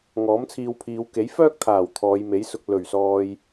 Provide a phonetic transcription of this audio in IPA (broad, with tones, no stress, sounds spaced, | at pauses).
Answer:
ŋ ɔː˨˥ m t͡sʰ iː˧ w pʰ iː˨˧ w k e˨˥ j f œː˥ k̚ t̪ʰ aː˨˩ w t̪ʰ ɔː˨˧ j m e˨˥ j s ʊ˧ k̚ l ɵ˨˩ ɥ s ɔː˨ j